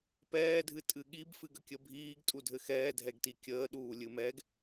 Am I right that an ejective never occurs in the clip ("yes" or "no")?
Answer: no